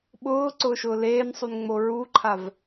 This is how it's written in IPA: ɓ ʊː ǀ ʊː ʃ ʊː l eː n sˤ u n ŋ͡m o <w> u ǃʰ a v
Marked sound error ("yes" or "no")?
yes